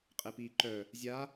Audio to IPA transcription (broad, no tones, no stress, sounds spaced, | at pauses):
qʼ e p iː ǃ œ | zʲ a